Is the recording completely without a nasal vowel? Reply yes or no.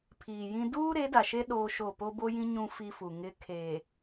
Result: no